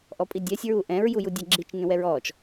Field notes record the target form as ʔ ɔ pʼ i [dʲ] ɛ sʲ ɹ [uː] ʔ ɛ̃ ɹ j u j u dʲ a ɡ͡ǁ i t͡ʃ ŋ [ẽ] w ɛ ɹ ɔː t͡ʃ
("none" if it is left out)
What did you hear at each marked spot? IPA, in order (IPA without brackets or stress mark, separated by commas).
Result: dʲ, u, ẽ